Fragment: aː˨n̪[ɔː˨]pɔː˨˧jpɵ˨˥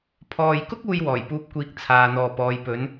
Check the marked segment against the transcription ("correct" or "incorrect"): correct